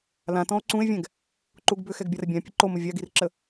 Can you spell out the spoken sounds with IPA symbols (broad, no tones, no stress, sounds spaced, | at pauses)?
l ã t ɔ̃ o̯ ǀ ũ e̯ vʲ ɛ̃ ɡ | ǃ u ɡ b ʏ x ɛ ɡ bʲ a r bʲ ã pʲ ɐ ǃ o m ə vʲ a ɡ i r ǁ ə